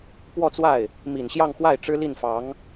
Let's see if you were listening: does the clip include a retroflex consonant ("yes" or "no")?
yes